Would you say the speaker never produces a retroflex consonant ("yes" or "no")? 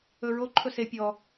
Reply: yes